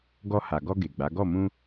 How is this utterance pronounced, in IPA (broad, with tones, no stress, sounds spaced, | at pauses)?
ɡ ɔ˧ h a˨ ɡ ɔ˧ ɡ e˨ ɡ͡b a˨˦ ɡ ɔ˦˨ m ũ˧